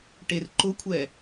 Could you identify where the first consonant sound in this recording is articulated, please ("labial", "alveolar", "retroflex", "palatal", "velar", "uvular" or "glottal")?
retroflex